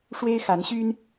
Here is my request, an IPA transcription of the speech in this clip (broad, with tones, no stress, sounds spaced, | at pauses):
ʂ w e˥ ɪ̯ x a˧˥ n ɕ y˥ n